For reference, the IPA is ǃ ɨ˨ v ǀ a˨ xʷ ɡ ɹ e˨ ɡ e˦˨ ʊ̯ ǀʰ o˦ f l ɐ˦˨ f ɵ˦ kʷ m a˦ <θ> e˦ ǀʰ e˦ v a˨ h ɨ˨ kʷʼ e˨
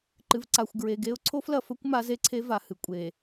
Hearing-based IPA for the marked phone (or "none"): z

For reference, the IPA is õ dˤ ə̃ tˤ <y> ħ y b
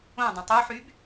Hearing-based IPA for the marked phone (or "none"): u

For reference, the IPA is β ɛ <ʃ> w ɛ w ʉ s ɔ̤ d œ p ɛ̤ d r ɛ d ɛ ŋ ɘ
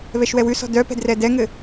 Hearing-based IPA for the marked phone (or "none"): ʃ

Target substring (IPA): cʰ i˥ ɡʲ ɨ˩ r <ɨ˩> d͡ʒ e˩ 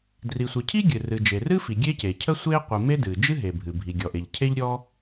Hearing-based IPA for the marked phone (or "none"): ɨ˩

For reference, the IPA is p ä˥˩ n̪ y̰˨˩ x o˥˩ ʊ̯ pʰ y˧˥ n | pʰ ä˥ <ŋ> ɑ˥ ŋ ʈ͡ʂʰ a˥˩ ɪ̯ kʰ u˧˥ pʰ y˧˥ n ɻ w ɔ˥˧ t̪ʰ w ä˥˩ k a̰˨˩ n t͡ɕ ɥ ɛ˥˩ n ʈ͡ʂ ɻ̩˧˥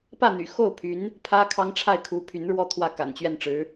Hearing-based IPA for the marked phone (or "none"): kʰ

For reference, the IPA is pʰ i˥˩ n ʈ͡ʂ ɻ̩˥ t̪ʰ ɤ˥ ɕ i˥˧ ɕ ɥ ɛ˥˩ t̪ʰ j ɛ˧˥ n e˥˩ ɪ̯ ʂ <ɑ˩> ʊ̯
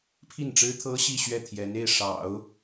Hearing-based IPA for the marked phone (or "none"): ɑ̰˨˩˦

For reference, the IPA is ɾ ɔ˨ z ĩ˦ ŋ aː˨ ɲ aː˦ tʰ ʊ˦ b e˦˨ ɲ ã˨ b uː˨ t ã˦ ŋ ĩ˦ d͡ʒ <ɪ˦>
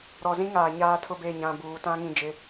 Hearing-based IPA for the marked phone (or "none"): ɪ˦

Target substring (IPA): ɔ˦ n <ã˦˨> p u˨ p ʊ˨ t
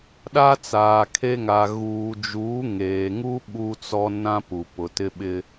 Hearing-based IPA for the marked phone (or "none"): ã˦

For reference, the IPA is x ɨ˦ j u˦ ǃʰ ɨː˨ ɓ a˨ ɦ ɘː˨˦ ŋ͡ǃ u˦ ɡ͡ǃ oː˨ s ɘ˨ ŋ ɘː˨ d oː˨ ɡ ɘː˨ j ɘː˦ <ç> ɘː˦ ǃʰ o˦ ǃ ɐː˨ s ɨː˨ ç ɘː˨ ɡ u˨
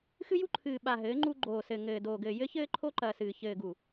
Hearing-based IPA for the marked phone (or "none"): ç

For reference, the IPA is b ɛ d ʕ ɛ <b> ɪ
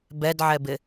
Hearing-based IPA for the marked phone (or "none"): b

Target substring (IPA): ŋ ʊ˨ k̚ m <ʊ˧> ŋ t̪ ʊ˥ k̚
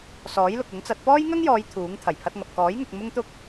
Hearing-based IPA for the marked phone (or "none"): ʊ˥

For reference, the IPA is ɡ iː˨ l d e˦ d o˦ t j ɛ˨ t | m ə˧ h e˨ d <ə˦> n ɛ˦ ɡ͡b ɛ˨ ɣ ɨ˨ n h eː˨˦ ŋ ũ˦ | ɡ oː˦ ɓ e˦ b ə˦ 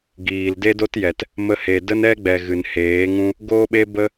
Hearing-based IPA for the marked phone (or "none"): ə˦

